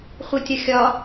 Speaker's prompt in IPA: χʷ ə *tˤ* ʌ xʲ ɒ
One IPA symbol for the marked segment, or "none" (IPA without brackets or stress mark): tʲ